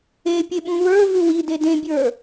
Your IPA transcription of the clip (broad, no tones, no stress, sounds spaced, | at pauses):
e pʲ e ɓ ũ β ə˞ v ʉ w i d e d ẽ bʲ ə˞